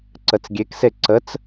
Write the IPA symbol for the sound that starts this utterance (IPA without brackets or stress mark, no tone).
ǀ